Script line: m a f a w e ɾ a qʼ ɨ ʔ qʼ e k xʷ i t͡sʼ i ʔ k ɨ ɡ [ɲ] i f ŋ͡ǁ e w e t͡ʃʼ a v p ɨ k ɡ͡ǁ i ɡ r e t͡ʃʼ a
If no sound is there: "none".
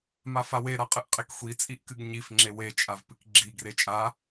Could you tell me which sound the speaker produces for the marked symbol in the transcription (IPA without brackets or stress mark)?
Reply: ɲ